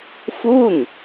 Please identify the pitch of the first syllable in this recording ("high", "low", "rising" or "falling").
falling